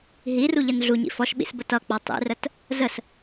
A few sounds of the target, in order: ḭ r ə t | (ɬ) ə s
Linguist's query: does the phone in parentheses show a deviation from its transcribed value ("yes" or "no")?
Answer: yes